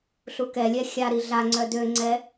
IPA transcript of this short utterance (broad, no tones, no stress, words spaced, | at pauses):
ɬukɛlʲɛ xʲaɾi ɮaŋ͡ǀœ døŋ͡ǀɛ